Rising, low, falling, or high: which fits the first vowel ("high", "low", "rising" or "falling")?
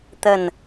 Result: falling